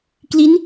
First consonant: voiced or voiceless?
voiceless